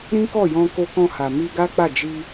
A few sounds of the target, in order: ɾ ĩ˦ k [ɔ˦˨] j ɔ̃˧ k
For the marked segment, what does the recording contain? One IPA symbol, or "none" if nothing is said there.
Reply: ɔ˦˨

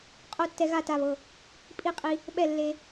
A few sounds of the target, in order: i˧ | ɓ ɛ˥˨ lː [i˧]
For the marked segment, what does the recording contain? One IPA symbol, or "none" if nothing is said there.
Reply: e˧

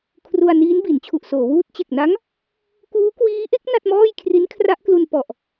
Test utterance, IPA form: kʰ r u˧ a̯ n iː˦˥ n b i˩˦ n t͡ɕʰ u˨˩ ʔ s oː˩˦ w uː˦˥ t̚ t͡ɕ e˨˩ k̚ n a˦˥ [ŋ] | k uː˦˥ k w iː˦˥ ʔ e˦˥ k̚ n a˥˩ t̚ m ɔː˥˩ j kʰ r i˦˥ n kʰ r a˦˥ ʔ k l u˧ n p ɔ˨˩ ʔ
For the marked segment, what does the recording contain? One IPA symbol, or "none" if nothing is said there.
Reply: ŋ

